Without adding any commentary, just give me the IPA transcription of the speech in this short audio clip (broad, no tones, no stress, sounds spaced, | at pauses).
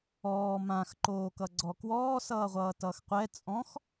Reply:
ɔː m ã x ǃ oː k ʌ ɡ͡ǀ ɔ k w ɔː s ʌː ʁʷ ʌː t ʌː x qʷ ɛ t͡sʼ ɔ̃ x